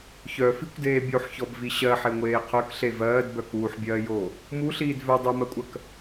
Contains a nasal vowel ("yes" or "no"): no